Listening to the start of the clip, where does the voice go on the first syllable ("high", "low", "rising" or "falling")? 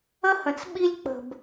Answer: high